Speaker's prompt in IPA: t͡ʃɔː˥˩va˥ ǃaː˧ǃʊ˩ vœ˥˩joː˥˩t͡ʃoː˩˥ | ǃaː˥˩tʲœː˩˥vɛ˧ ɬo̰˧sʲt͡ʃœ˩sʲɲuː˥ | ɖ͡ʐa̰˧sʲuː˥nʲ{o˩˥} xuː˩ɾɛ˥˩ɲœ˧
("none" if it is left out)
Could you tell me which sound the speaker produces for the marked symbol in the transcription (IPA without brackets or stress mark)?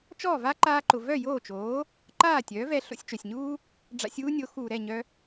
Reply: o˩˥